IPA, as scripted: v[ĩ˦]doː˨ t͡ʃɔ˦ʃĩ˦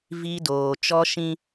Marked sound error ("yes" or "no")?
yes